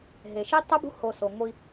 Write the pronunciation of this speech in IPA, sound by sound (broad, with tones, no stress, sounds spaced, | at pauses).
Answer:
ɦ e˨ ʃ i˦ tˤ ʉ˦ b ṳ˦ h o˧ s o˨ ŋʷ i˧